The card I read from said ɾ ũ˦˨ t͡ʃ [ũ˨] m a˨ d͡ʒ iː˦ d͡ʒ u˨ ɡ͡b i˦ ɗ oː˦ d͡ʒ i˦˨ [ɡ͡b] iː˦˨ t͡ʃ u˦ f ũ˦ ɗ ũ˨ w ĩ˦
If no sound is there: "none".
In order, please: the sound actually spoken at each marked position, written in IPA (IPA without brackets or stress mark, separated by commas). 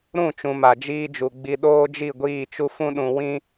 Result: ũ˨, ɡʷ